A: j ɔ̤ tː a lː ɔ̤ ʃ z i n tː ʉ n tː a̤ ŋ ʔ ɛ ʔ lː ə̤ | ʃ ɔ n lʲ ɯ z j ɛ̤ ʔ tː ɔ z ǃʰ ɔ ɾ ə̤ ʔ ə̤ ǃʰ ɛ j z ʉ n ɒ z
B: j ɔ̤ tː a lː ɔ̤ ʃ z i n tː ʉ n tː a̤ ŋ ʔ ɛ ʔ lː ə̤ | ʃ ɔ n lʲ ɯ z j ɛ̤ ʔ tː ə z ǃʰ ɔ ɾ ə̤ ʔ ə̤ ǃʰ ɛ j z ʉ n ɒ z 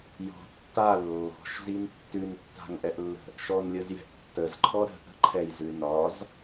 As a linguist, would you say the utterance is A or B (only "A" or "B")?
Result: B